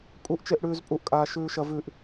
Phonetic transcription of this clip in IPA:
kʼuʔt͡ʃeʔ ɽʉːzpʼuʔkʼaː ʃʉːʃɐvʉʔ

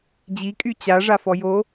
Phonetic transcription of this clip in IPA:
d͡ʑikʼy t͡ɕaʐafɔ jo

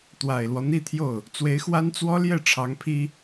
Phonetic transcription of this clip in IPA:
t̪wa˨˩ɪ̯lwɔ˦ n̪i˥˧t̪ʰjo˥˩ʊ̯ | t͡swe˧˥ɪ̯xwa˥n t͡swɔ˥ljɛ˥˩ ʈ͡ʂʰɑ˧˥ŋpʰi˥

